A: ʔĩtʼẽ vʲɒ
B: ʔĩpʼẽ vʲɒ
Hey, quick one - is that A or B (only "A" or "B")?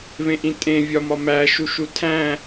A